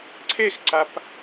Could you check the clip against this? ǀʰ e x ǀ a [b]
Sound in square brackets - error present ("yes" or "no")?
yes